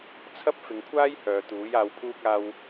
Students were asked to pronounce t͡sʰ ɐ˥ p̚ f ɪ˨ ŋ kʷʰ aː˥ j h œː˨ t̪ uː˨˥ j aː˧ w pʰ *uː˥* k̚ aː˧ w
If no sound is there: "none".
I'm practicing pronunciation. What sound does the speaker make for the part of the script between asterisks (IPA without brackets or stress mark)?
uː˥